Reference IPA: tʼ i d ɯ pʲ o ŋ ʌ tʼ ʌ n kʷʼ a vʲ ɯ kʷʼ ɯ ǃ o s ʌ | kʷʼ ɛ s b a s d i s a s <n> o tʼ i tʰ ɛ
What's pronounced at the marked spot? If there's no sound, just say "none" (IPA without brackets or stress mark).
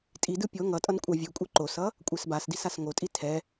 ŋ